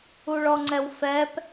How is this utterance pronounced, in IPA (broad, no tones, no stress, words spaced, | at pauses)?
uɭɔŋ͡ǀɛwfɛp